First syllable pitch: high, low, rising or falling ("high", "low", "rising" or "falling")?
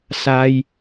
low